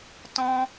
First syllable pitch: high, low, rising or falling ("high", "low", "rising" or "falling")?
high